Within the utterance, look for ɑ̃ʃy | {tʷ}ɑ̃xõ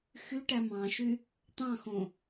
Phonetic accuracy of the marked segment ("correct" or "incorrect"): incorrect